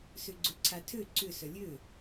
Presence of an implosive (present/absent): absent